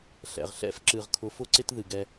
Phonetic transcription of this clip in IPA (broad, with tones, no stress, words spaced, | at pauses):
ɬɛ̰˨ʁɬɛ̰˦fǁɨ˨ʁ kʰʊ˨˦fʊ˦ǀɪ˦t ðɨ˨ɡɛ˦